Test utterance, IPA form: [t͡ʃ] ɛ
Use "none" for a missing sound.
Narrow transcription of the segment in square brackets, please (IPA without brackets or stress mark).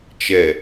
t͡ʃ